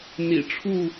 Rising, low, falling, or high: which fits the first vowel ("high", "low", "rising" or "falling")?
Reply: low